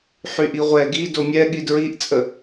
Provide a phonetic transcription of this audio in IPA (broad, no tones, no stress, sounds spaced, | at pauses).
ħ y ʔ i ʁʷ ɛ ɡ i d o mʲ ɛ ɠ i d ɹ i ʔ t͡sʼ ə